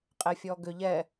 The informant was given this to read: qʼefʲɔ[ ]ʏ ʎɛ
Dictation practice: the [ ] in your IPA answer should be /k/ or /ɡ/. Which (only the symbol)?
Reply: ɡ